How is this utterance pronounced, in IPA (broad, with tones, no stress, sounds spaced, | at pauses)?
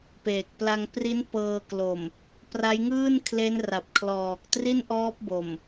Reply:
p eː˨˩ k̚ p l a˧ ŋ p r i˦˥ n p ɤː˧ k l o˨˩ m | p r a˦˥ j ŋ ɯː˥˩ n kʰ l e˦˥ n r a˨˩ p̚ kʰ l ɔː˨˩ k̚ t r i˥˩ n ʔ ɔː˦˥ p̚ b o˨˩ m